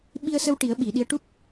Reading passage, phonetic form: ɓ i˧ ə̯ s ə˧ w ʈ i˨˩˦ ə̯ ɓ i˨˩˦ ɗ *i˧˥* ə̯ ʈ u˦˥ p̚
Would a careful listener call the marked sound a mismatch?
no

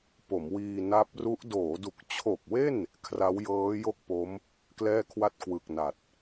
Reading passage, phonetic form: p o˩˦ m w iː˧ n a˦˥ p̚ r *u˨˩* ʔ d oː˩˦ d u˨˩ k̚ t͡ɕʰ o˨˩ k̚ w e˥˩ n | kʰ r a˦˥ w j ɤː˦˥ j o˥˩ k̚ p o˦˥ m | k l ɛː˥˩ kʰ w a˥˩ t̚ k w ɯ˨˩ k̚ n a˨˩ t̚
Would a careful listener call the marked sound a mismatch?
yes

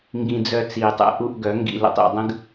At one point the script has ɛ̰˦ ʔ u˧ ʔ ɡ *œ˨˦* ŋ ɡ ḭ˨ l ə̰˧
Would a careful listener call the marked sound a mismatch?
no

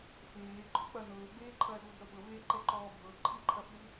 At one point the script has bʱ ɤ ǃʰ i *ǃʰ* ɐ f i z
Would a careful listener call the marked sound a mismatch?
no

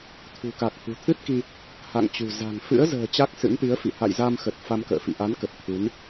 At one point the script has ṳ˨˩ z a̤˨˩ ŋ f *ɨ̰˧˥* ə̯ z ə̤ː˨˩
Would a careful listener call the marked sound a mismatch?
no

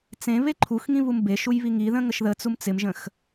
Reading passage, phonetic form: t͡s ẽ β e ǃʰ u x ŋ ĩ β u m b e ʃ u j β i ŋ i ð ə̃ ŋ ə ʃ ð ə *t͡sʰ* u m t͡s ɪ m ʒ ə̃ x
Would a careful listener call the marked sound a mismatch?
yes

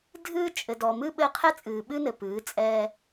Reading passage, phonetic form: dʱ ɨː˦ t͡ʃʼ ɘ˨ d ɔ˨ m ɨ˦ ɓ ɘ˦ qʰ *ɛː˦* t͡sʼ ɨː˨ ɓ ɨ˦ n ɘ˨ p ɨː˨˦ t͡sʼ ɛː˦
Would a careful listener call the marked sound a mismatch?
yes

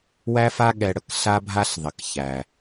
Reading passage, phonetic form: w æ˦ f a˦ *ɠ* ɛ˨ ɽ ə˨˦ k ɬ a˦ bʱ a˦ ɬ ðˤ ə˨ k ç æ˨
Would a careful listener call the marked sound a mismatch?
no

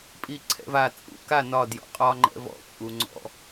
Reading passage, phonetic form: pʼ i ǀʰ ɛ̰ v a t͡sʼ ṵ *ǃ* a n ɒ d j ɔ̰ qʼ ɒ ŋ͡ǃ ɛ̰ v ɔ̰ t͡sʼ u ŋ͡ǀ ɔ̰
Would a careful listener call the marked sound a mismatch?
yes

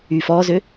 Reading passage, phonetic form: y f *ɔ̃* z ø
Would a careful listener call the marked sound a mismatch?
yes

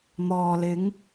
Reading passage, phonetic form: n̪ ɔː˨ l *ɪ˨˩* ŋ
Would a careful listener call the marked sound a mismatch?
yes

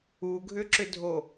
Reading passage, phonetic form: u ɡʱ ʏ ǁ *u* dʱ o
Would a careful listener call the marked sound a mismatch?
yes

